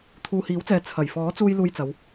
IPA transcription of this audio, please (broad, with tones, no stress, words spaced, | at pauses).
t̪ʰuː˨hiː˨˥wt͡sɛː˨ t͡sʰɐ˨˩jfɔː˨˥t͡suː˧j luː˧jt͡sɐ˨˧w